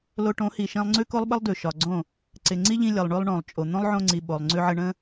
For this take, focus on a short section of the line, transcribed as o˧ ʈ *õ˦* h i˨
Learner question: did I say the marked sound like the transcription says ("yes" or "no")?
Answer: no